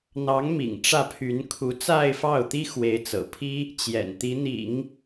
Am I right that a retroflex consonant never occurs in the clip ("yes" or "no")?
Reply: no